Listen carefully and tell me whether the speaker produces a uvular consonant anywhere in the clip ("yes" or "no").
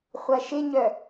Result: yes